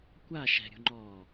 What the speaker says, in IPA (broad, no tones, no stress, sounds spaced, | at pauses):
kʷ a ʃ ɛ̤ ɾʲ ṳ ŋ͡ǃ ɔː